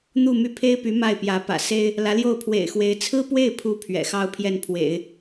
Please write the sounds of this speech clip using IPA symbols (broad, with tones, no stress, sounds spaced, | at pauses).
n̪ u˥˧ m y˥˩ pʰ e˥ ɪ̯ p y˧˥ m a˥˩ ɪ̯ p j ä˧˥ p ä̰˨˩ s e˥ ɪ̯ | l ä˧˥ l j o˥˩ ʊ̯ pʰ w ḛ˨˩ ɪ̯ x w e˧˥ ɪ̯ t͡sʰ ɹ̩˥ p w e˥˩ ɪ̯ pʰ u˧˥ pʰ ɥ ɛ̰˨˩ x ɑ˥ ʊ̯ pʰ j ɛ˥˩ n pʰ w ḛ˨˩˦ ɪ̯